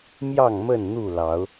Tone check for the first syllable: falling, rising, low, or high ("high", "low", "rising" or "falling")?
falling